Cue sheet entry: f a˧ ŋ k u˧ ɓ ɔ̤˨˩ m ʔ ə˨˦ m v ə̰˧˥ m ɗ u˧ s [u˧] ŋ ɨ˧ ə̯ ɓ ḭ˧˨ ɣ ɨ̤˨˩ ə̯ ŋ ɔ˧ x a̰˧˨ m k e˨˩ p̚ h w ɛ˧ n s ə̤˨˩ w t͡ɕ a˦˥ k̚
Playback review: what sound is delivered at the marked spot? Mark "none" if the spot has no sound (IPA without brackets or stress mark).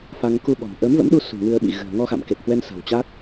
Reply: ṳ˨˩